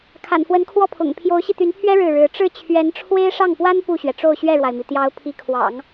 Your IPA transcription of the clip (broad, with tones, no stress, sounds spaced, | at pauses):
kʰ a̰˨˩ n f w ə˧˥ n kʰ w ɔ˥˩ pʰ ʊ̰˨˩ ŋ pʰ j o˧˥ ʊ̯ ɕ i˧ t̪ y˧˥ n pʰ ɥ ɛ˥ ɻ ɻ̩˥˩ ɻ ɻ̩˧˥ ʈ͡ʂ ɻ̩˥˩ t͡ɕʰ ɥ ɛ˧˥ n ʈ͡ʂʰ w e˥ ɪ̯ ʂ ɑ˥˩ ŋ p w a˥ n p u˥˩ ɕ ɥ ɛ˩ ʈ͡ʂ o˥˧ ʊ̯ ɕ ɥ ɛ˥˩ ɻ w a˩ ɪ̯ m i˩ t̪ j ɑ˧˥ ʊ̯ pʰ i˧˥ kʰ w ɑ̰˨˩˦ ŋ